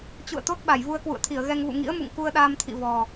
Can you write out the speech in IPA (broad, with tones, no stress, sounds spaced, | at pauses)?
t͡ɕ ṵ˧˨ ə̯ t̪ o˦˥ t̚ ɓ a˧˩ j v u˧ ə̯ k w ṵ˧˨ ə̯ t̪ʰ i˧˩ ə̯ ɣ ɛ˧ ŋ v ṵ˧˨ ŋ ḭ˧˥ ə̯ m ṵ˧˨ ŋ k u˧ ə̯ ɗ aː˧ m t̪ʰ ḭ˧˨ v ɔ˨˩